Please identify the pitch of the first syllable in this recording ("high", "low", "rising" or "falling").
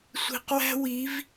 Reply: low